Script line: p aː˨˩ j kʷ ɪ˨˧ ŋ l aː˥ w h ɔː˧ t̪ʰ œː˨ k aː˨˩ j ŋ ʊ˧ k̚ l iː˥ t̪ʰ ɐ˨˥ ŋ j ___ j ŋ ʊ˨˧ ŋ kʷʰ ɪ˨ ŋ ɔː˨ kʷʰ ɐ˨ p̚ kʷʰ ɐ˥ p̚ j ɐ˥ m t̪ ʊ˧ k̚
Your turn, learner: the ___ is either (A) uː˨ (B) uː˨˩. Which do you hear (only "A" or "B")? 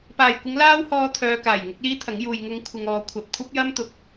A